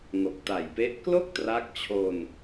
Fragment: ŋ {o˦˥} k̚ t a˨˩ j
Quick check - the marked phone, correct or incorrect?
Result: incorrect